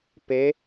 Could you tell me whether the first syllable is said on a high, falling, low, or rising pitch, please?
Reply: rising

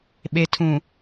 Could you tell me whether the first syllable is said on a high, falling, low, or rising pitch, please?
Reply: low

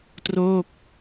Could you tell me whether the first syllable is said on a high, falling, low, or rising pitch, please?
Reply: falling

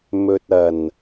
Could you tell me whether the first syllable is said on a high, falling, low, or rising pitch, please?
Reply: low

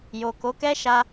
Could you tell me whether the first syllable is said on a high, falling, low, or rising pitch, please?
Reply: low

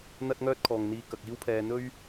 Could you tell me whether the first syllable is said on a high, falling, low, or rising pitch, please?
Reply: high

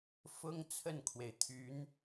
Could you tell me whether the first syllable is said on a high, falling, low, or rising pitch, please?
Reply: high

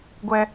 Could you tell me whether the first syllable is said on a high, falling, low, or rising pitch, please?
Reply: high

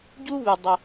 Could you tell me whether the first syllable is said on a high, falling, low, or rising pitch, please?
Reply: high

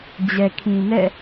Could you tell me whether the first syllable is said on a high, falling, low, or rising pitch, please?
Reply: low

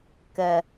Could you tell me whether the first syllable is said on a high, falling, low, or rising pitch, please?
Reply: low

